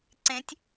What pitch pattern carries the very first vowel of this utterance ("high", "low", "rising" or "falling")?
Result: rising